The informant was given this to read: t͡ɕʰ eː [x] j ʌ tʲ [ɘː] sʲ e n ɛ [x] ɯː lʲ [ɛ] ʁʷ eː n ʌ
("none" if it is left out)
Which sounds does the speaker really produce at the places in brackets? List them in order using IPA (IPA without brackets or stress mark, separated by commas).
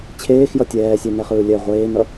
x, ɛː, χ, ɛ